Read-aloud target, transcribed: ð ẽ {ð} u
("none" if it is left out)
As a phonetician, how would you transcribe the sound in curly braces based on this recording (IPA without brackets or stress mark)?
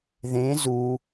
z